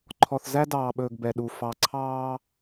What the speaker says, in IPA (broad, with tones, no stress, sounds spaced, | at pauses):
ǃʰ ɔ˨ θ z æ˦ d ɑː˨ ɓ ɵː˨ ɡ b ɛ˨ ɗ u˨ f ɑ˨ ǀʰ ɑː˦